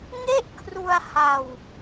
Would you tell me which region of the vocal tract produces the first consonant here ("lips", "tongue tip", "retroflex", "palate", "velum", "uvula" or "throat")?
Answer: velum